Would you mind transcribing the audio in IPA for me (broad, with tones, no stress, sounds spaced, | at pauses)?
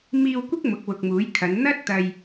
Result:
m iː˧ w kʷ ɪ˥ k̚ m ʊ˨˥ k̚ w ʊ˨ k̚ m uː˨˥ j kʰ ɐ˨˧ n n̪ ɐ˥ t̚ t̪ ɐ˧ j